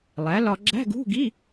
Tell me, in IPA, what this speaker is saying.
lˠ æ˩˥ l ɒ˧ ɡ͡ǁ æ̤˧˥˧ ɡ ṳ˧˥˧ ɡ i˧˥˧

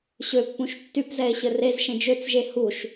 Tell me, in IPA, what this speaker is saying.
ɕ ø pː ũ ʃ tː y p z ɛ e̯ ɕ ɘ r e z ʃ ẽ d͡ʒ ø t͡s ʒ e h u ʃ

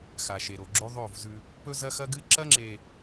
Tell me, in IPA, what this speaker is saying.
x a˨ ʃ e˨ ɾ o˨ ɡ͡ǁ o˦ ðˤ o˦˨ v z ʉ˦ | p ɵ˦ z ɐ˦ x ɐ˦ ɡ ɨ˦ ǁ ɐ˦ ŋ͡ǁ e˨

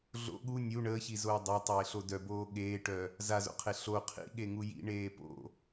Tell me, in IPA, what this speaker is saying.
ɮ o̰ ɠ u nʲ u ɳ əː ç i z oː dˤ a tˤ eː ɬ o d œ b oː ɠ eː ʈ œ | z a z o̰ qʰ e ɬ o qʰ ḭ ɠ e ŋ u j ḭ ɳ eː p o̰

